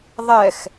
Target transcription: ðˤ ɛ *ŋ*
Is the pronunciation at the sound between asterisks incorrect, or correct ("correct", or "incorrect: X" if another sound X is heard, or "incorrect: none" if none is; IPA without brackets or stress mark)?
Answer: incorrect: x